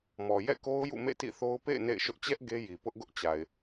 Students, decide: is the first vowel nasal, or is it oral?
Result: oral